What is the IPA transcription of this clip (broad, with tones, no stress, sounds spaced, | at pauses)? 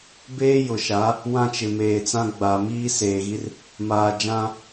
b eː˦ j ʊ˨ ʃ a˨˦ | w ã˦ t͡ʃ ɪ˨ m eː˨ t͡s ã˦ ɡ͡b a˨ m iː˦ s eː˨ ɣ i˦ r | m aː˨ d͡ʒ ã˦